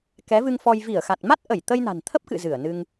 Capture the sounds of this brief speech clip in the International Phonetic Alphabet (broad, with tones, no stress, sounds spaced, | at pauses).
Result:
k ɛ˨˦ v ɨ˧ ŋ f ɔ˧ j v i˧˩ ə̯ x a˨˩ t̚ m a˦˥ t̚ ʔ ə˧˩ j t̪ ə˧ j n a̤˨˩ n t̪ʰ ə˦˥ p̚ k ɨ̰˧˨ z ɨ˧˩ ə̯ n ɨ˧ ŋ